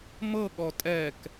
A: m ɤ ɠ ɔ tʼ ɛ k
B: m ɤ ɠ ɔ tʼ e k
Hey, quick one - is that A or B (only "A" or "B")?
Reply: A